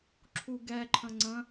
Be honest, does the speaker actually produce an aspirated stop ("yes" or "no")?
yes